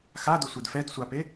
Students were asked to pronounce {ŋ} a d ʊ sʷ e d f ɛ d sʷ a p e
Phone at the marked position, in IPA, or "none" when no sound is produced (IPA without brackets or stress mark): x